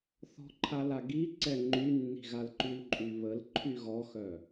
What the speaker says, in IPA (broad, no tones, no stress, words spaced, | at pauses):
θɔ̤ǃʰala ɡiǀɛ ŋ͡ǃynːi̤ ɣalǃylǃʼyβəl ǃʰyɣɔxœ